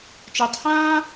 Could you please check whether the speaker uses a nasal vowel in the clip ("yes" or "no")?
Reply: yes